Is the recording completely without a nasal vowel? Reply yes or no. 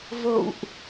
yes